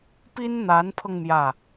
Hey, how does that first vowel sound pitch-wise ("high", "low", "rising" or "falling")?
high